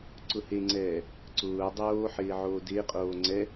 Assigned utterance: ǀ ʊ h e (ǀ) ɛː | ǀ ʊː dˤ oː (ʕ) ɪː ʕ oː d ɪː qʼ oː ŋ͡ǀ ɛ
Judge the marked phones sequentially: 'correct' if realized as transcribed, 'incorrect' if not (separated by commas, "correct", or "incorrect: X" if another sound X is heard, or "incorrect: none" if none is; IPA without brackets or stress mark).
incorrect: ŋ͡ǀ, incorrect: ħ